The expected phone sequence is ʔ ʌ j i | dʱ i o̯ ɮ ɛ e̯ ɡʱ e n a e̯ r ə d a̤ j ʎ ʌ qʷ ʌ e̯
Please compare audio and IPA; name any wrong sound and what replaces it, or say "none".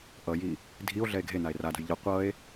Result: ə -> a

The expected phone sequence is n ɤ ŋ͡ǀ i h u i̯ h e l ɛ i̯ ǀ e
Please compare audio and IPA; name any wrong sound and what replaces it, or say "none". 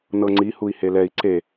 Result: none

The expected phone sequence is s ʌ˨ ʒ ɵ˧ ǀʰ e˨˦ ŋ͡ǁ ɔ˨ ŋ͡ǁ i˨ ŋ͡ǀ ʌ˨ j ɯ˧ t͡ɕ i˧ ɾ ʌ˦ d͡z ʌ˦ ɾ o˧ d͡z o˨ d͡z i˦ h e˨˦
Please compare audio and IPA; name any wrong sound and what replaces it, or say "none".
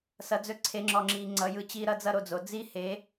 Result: ʒ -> d͡z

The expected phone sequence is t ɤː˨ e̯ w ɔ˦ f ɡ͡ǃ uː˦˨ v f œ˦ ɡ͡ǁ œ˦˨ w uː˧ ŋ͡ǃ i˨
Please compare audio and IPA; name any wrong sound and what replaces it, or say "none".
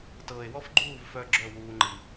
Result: none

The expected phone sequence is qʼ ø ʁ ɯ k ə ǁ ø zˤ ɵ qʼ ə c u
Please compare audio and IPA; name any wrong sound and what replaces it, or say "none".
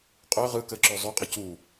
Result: ɵ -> ø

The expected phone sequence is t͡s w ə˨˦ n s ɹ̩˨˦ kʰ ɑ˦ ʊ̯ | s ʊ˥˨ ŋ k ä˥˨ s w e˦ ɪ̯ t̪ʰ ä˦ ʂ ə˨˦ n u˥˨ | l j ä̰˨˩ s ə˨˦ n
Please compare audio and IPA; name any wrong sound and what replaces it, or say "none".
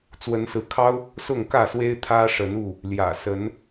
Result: none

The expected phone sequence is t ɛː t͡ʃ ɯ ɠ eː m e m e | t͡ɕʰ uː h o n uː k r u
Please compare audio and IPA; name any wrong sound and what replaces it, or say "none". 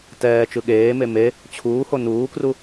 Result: none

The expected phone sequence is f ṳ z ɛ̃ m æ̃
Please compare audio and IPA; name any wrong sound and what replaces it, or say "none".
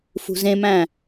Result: ɛ̃ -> ẽ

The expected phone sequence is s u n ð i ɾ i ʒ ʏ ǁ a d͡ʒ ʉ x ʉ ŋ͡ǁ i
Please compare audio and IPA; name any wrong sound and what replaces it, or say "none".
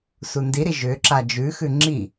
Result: ð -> d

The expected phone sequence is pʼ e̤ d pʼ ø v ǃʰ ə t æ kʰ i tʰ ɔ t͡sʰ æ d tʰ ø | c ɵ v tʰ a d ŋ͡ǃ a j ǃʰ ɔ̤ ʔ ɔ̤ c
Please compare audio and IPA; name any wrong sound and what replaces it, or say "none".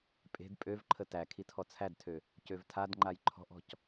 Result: ɵ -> ø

